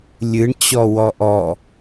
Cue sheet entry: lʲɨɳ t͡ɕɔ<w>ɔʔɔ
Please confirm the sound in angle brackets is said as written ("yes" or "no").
yes